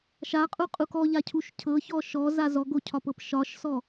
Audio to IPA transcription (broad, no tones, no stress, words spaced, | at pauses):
ʃaqʼuqʼuk ɔʎacʰuʃ cʰɤçɔ ʃɔza zɔɡocʰɒpɤp ʃɒʃsɔ